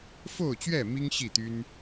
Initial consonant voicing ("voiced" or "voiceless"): voiceless